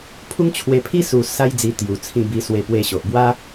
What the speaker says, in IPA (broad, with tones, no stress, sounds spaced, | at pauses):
pʰ u˦ ŋ t͡ɕʰ w e˧ pʰ i˦ s u˧ s a˦ j d͡z i˧ t̪ j u˨˩ t͡sʰ ĩ˧ b i˧ s w e˧ p w e˧ ɕ o˨ ʔ b w a˦